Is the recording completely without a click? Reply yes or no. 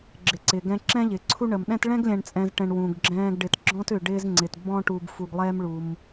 no